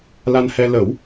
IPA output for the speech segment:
l a˧ n h ɛ˧ l ə˨˩˦ w

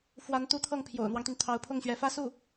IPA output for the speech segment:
f w a˧˥ n t̪ u˧˥ t̪ʰ ɤ˥˩ ŋ pʰ j o̰˨˩ ʊ̯ n̪ w ɑ˦ ŋ t̪ y˩ n t̪ʰ ɑ˧˥ ʊ̯ pʰ ʊ˥˩ ŋ ɕ ɥ ɛ˧˥ f ä˥ s u˥˩

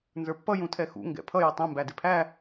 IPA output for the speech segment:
n z ə˞ pː ʌ j ũ tʰ ɛ x ṵ ŋ ɡ ɛ̰ pʰ ʌ j ɪ tˤ ɛ̃ m b æ d ɪ pʰ æ

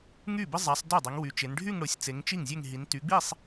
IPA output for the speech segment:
ŋ y˥˩ b ɪ˥ zˤ a˨˦ sˤ d y˥˩ dˤ i˨˦ ŋ w y˨˦ t͡ʃ e˨˦ n ɖʱ y˥˧ ŋ ɽ ʊ˨˦ sʲ t͡s e˨˦ ŋ t͡ʃ i˥˩ ŋ zʲ e˥˧ ŋ ɦ i˨˦ n t y˨˦ ɡ͡b i˥˧ sˤ

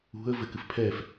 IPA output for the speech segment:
ṳ ə̯ v ɘ k ɨ f pʰ ɛ f

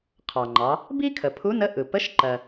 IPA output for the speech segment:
qʰ ɑ˩ ŋ͡ǃ ɑ˩˧ | b i˥ kʰ ə˩ pʰ u˧˥ n ə˧˥ ʔ ɯ˩ p ə˧˥ ʃ ǃ ɜ˩

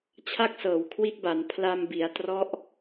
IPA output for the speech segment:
t͡ɕʰ a˥˩ k̚ s ɤː˩˦ w kʰ w i˦˥ t̚ b a˩˦ n pʰ l a˧ m b i˩˦ a̯ t r ɔ˦˥ ʔ

